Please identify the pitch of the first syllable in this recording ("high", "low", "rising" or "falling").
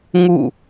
falling